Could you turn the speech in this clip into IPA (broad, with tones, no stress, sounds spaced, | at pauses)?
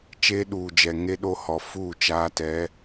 t͡ʃ eː˦ ɗ uː˨ d͡ʒ ɛ˨ ŋ e˦ ɗ o˦ h ɔ˨ f u˦˨ t͡ʃ aː˦ t ɛ˨˦